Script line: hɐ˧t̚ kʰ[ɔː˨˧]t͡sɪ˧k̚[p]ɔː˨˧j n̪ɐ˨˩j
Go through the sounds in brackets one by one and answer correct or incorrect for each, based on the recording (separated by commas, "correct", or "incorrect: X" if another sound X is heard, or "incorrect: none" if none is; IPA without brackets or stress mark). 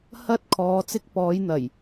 correct, correct